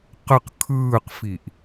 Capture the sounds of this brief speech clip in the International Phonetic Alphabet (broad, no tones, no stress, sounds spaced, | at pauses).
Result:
q ə q kʰ ɯː q f i ʔ